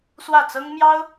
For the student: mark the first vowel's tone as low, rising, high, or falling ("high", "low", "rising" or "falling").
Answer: falling